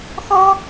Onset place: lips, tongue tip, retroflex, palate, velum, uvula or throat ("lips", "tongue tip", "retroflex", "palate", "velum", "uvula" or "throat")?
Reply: velum